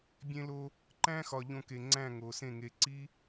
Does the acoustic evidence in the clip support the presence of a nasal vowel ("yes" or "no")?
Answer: yes